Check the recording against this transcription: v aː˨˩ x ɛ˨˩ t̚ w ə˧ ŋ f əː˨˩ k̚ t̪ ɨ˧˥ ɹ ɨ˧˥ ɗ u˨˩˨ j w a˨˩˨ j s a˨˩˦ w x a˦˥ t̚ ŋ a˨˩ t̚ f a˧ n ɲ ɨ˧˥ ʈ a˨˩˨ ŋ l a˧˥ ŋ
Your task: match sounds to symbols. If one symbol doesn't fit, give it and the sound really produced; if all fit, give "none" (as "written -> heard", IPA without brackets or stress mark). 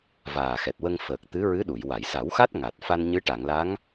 none